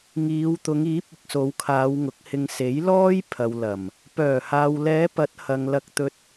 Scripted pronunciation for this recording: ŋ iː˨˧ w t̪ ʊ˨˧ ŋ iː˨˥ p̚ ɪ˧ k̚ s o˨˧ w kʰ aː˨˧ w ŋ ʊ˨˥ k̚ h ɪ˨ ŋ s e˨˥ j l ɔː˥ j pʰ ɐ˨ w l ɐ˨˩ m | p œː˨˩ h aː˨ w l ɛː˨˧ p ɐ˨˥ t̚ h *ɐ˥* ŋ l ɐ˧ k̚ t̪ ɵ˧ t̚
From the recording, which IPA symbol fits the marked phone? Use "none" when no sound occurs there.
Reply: ɐ˨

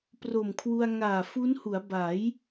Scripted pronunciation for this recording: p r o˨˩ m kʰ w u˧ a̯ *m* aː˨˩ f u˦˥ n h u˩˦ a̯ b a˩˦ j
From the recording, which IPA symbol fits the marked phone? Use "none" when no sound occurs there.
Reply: ŋ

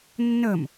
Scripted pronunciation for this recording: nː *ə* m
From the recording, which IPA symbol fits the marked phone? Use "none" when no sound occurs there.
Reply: ə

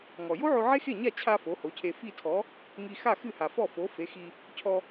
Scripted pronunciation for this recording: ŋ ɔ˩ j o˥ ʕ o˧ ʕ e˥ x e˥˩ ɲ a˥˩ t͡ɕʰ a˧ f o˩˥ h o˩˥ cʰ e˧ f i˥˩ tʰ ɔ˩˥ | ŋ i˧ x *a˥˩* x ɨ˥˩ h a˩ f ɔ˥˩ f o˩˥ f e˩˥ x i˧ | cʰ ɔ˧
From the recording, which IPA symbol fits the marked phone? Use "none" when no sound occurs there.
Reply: a˥˩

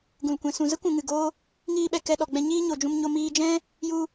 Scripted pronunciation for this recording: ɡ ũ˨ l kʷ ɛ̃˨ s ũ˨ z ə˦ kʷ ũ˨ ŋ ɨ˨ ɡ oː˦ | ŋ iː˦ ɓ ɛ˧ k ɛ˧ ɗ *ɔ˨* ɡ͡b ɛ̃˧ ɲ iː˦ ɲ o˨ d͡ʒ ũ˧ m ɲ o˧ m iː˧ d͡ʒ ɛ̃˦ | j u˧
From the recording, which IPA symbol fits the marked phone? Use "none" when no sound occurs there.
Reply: ɔ˨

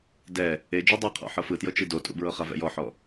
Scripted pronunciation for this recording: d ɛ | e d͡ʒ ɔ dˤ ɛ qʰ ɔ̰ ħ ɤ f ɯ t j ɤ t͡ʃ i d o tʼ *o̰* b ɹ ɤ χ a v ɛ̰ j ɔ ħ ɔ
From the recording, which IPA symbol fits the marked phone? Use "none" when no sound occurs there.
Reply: ṵ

